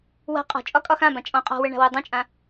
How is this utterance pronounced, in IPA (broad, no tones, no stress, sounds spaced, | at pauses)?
w a̤ qʼ ɔ̤ t͡ʃʼ ɒ kʼ ɒ x ã b ã t͡ʃʼ ɔ̃ qʼ ɔ̤ w ə ɳ a̤ w u dˤ ũ t͡ʃʼ ã